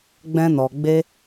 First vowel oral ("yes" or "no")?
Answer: no